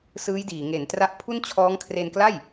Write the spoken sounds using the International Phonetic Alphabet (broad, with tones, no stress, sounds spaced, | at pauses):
s ɯː˦˥ j d iː˨˩ ŋ e˩˦ n t r a˦˥ ʔ pʰ u˥˩ n t͡ɕʰ ɔː˦˥ ŋ kʰ r e˧ n k l a˥˩ j